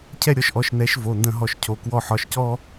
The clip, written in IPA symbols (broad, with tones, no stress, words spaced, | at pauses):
cʰɛ˦˨ɾʲɔ˨˥ʃʔɔ˩˧˩ʃ nɛ˨˥ʃvo˩˧˩ndə̃˦˨ɦɔ˦˨ʃ cʰo˩˧˩kwɔ˦˨ħɒ˨˥ʃcɔ˥